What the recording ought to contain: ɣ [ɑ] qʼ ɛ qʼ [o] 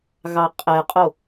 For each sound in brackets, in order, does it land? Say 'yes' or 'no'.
yes, yes

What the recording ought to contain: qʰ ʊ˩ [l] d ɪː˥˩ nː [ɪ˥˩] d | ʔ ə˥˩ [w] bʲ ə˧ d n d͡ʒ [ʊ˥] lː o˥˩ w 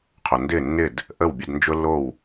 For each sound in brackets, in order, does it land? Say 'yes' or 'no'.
no, yes, yes, yes

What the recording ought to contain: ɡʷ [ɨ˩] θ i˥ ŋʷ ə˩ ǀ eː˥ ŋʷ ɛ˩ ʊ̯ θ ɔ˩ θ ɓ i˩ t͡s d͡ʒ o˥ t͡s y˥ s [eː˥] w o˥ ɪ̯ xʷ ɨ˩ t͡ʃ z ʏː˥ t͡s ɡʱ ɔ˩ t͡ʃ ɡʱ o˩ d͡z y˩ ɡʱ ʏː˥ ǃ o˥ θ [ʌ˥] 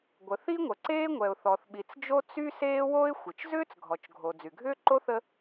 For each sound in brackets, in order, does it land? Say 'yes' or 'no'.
no, yes, no

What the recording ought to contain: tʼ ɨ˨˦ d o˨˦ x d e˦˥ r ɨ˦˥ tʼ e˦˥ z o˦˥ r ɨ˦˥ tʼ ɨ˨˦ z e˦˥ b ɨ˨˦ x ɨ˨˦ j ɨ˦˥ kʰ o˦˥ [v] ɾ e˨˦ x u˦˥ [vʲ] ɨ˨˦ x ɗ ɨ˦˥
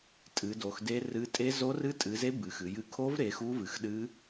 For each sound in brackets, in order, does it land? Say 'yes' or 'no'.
yes, no

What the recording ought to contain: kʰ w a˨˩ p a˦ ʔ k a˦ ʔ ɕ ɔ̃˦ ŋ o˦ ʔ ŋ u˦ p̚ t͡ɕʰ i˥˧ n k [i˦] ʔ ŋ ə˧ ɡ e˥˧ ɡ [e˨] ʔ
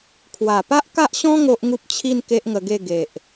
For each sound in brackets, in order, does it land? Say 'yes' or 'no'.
no, yes

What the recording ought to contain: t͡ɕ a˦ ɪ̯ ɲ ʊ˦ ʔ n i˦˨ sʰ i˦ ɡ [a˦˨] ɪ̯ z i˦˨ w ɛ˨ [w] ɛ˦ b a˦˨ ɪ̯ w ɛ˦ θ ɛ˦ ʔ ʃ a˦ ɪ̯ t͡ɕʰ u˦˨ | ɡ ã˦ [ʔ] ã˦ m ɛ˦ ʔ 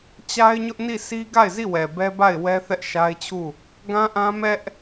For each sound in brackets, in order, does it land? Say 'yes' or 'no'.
yes, no, yes

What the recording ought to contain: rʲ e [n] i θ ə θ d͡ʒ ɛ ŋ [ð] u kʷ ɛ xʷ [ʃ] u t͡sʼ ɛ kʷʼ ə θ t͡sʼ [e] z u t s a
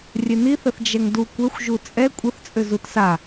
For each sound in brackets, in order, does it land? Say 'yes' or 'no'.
yes, no, no, no

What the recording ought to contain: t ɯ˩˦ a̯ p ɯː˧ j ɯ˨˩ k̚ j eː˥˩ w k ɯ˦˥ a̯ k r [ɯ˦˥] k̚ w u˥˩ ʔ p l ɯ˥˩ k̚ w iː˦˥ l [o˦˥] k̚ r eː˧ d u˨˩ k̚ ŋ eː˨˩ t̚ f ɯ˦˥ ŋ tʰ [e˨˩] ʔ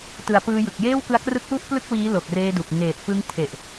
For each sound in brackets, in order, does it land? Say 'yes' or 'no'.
yes, no, yes

